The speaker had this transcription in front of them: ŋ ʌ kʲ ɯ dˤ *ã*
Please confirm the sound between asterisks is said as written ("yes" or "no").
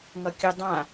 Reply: yes